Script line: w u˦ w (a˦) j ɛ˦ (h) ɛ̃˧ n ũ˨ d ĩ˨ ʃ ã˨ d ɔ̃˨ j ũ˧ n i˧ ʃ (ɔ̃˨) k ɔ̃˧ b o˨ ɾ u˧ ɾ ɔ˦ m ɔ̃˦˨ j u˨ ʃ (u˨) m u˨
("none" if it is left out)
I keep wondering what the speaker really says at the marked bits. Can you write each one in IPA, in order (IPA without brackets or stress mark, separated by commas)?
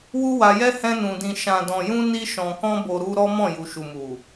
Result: a˧, h, ɔ̃˨, u˨